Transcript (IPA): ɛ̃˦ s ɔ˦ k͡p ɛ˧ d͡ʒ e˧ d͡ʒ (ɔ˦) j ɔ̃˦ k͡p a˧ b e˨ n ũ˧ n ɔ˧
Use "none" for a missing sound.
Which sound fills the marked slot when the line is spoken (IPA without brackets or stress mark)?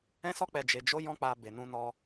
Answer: o˦